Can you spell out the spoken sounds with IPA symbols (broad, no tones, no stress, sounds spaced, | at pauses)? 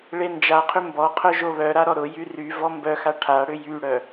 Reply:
ɭ e n d͡ʒ a qʰ ʏ m b ɔ qʰ œ ʒ o β œ ɾ a ɾ ɔ ɾ ʊ j y r y v ɔ m b œ x a ʈʰ a ɽ ʏ j y ɽ œ